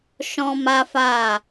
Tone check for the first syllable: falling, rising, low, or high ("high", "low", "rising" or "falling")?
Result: high